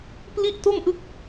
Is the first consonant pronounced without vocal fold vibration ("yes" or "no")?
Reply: yes